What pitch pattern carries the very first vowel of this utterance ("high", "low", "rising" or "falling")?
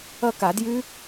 falling